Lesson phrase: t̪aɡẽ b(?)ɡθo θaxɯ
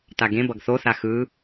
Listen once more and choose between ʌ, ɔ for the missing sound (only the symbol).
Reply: ʌ